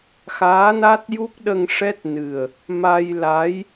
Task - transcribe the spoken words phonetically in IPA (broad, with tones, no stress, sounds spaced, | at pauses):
x aː˧˥ n a˦˥ t̚ j u˦˥ k̚ ɗ ə˧ ŋ ʂ ɛ˦˥ t̚ n ɨ˨˩ ə̯ | m a˧ j l a˧˥ j